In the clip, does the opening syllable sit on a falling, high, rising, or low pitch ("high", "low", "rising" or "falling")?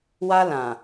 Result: high